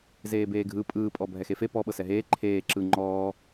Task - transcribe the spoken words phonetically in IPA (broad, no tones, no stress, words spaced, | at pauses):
zeːbeːɡʱɯ pʼɯːpʼɔ bʱɛxefe pɔ ɓɤsɛɦeː ǃʰeː ǁɯ ŋ͡ǃɔː